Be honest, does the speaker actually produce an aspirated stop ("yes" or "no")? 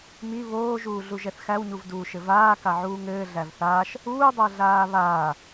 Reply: no